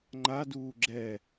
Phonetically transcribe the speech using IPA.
ŋ͡ǃ a d uː ɡ͡ǁ ɛ

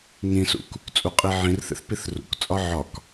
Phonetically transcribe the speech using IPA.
ŋ ĩ s ṵ k | t͡sʼ u qʼ i ʕ ĩ r θ ḛ θ p i θ r ṵ k t͡sʼ ɒ ʕ ɒ k

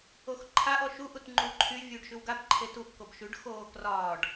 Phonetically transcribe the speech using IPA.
o x ǃʰ a ʔ ɔ ʃ u ʔ u t ŋ͡ǃ uː ǃʰ y vʲ uː ɖ ʃ ʉ w ɡ a b ǃʰ e t u ʔ k o b ʃ ʉ ɖ x oː k r ɒː ɖ

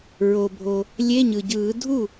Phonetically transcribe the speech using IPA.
ɹ o˩ bʱ o˩ | lʲ e˧˥˧ ɲ ɯ˩ ɟ ɯː˨˩˦ dʱ u˥˩

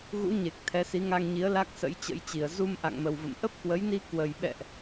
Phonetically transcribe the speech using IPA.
ɣ ṵ˧˥ ɲ e˨˩ k̚ t̪ʰ ɛ˨˦ s i˨˦ ŋ a˧ ŋ ɲ i˨˦ ə̯ l a˦˥ k̚ s ə̰˧˥ j t͡ɕ ə̰˧˥ j t͡ɕ i˨˩ ə̯ z u˧ m ʔ a̰˧˨ ŋ m ə˨˩ w v ə̰˧˨ m ʔ ə˦˥ p̚ k w ə˨˦ j n i˧ k w ə˨˩ j ɓ ɛ̰˧˨ ʔ

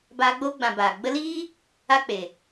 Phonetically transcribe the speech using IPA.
b aː˧ ɡ͡b oː˦ ɡ͡b ã˨ b aː˨ ɡ͡b ə˧ l iː˦ | a˦ k͡p e˨

